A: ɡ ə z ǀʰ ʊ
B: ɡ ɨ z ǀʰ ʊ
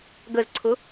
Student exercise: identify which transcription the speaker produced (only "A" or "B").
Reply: A